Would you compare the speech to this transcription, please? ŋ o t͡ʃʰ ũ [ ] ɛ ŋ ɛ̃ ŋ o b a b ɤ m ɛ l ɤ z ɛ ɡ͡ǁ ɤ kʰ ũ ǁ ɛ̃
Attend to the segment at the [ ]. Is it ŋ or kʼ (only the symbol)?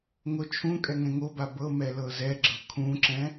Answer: kʼ